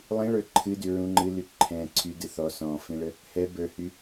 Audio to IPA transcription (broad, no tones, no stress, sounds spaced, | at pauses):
lˠ ĩ ɭ ə˞ ǃʰ ɨ d y ɹ ũ ŋ͡ǃ ɨ l y ǃʰ ɛ̃ ǀʰ y d ɨ θ ɔ s ɔ̃ f ĩ ɭ ə | h ɛ b ə˞ h y